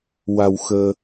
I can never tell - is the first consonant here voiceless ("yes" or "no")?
no